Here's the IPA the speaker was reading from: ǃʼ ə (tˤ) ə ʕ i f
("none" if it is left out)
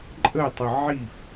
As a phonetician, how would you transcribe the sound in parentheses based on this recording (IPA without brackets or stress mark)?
tˤ